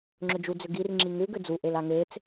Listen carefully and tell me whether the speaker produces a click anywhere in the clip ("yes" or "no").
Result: yes